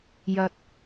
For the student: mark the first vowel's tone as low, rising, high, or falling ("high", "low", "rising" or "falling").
low